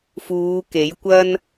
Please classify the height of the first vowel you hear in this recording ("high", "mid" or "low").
high